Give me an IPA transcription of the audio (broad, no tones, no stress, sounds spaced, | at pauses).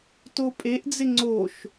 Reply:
t o pʼ e ʔ d͡z ɪ ŋ͡ǀ o ʃ